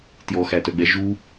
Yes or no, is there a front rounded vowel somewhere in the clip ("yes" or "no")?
yes